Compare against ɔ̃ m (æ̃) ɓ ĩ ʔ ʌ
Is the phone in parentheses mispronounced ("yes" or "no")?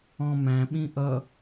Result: no